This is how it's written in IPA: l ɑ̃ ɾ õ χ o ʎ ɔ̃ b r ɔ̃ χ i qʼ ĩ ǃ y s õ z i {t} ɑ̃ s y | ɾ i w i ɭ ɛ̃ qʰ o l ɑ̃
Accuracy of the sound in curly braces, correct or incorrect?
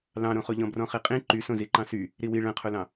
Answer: incorrect